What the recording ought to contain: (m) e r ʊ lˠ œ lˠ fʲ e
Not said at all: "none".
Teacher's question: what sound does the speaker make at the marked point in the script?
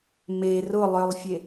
m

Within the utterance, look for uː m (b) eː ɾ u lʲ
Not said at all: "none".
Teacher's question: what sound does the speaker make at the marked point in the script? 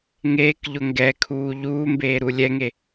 b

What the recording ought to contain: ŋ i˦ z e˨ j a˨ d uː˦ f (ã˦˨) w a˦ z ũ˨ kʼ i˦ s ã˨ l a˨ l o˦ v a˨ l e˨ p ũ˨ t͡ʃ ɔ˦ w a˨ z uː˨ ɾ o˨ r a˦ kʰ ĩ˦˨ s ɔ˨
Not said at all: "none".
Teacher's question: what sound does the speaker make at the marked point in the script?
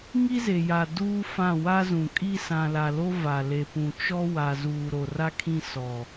ã˦˨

